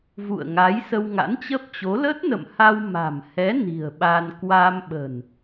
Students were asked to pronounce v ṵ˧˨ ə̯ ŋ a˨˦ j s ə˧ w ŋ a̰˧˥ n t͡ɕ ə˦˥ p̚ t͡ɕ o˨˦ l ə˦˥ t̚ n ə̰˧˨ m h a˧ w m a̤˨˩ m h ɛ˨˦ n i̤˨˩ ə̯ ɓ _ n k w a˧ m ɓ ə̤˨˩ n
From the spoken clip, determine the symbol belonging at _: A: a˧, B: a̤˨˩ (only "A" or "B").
A